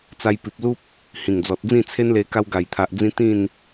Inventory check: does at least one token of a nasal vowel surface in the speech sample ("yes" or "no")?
yes